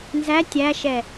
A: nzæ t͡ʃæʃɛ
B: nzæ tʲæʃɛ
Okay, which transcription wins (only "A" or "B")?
B